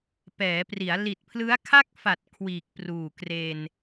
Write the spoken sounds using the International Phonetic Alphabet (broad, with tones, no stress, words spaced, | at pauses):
pɛː˩˦pri˩˦a̯ li˨˩t̚pʰlɯ˦˥a̯kʰa˥˩k̚fa˨˩t̚ kʰwiː˨˩k̚pruː˨˩ kre˧n